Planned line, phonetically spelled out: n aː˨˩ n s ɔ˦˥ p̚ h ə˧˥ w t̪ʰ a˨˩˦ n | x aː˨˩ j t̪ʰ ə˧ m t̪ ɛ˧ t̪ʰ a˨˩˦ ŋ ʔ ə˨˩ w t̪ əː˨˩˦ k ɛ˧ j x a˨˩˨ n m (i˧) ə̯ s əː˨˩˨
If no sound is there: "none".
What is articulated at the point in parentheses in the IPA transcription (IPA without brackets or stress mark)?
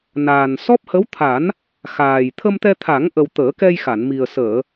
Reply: i˨˩